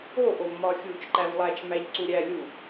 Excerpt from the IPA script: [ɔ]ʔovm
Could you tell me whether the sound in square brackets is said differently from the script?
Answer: yes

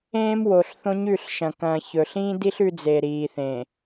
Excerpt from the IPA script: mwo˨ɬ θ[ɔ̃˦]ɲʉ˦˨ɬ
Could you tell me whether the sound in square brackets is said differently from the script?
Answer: yes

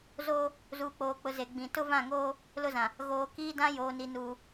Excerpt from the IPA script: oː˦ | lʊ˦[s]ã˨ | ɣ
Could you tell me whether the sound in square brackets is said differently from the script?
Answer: yes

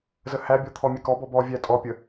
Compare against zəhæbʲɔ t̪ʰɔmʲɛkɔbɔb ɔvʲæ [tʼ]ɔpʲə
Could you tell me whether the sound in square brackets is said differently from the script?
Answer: no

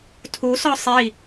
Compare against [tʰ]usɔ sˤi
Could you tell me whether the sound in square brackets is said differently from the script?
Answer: no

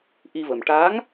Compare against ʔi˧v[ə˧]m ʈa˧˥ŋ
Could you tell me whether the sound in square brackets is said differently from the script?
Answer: yes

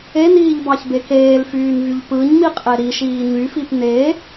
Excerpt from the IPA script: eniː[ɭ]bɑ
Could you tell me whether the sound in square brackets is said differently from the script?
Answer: yes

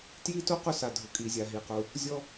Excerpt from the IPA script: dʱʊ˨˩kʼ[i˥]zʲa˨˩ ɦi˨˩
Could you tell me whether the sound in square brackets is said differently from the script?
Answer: yes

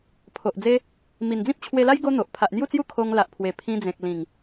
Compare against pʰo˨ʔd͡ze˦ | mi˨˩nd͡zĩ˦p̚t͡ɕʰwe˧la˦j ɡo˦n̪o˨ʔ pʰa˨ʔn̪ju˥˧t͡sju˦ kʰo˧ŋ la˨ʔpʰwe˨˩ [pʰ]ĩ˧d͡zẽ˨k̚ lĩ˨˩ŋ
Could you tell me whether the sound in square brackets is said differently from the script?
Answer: no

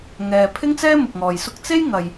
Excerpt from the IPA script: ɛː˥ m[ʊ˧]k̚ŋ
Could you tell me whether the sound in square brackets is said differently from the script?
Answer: yes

